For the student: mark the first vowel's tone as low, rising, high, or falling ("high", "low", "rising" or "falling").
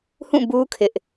falling